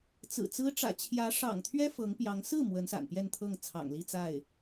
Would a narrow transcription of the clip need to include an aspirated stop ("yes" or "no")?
yes